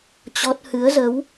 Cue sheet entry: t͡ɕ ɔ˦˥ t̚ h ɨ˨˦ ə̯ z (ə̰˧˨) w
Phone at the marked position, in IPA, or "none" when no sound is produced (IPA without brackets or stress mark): ə˨˦